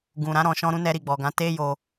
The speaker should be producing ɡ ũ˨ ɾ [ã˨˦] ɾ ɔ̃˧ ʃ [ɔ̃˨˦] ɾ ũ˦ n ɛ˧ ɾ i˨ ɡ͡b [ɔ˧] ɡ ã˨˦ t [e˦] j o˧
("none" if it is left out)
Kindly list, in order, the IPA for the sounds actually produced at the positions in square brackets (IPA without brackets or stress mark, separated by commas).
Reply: ã˨˦, ɔ̃˦, ɔ˨, e˦